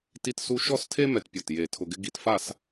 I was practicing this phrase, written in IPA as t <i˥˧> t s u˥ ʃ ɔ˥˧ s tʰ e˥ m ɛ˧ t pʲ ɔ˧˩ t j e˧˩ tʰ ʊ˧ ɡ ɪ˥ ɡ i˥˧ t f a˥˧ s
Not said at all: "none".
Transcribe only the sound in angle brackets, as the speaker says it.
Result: i˥˧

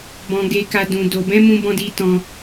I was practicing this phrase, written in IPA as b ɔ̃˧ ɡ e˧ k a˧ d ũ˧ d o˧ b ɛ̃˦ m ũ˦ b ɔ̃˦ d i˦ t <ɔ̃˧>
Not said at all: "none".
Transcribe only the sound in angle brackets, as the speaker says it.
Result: ɔ̃˦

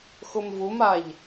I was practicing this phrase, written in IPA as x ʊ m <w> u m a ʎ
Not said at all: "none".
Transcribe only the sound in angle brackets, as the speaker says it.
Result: v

